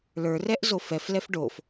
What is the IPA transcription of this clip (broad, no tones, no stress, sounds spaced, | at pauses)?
l ə˞ r ɛ ʔ z o f ɛ f l ɛ f ɖ o f